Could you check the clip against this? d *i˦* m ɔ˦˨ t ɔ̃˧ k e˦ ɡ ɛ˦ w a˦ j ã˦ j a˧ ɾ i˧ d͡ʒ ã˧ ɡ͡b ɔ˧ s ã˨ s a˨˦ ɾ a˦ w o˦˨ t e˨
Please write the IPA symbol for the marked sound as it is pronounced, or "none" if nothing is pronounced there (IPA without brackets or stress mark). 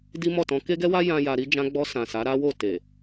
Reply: i˦